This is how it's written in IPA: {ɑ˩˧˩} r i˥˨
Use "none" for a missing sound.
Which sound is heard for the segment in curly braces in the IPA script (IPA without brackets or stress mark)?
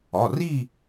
ɒ˩˧˩